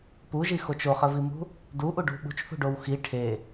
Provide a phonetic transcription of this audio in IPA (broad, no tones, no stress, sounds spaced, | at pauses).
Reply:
p u ʒ i x o t͡ʃ o χ ə v i m ṳ | d u ʔ u ɖ ṳ ɓ ṳ t͡ʃ θ ṳ ɖ o w x i ʈʰ e